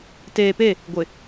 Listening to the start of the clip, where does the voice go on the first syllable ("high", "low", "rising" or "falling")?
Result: low